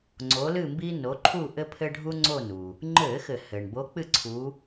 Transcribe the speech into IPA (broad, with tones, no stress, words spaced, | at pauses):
ŋ͡ǀo˨˦lɨ˦˨mbi˦ no˨˦ǃʰu˦˨ ʔɘ˦pʰɘ˦ ɖʱu˦ŋ͡ǀo˦˨nu˩ | ŋ͡ǃɘ˧˩˧ xɘ˧˩˧ hɘ˩ɳ bo˨˦k͡pɨ˦˨ ǀʰu˨˦